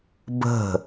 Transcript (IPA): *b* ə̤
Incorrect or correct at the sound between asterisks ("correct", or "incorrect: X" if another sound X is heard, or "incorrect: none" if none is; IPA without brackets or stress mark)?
correct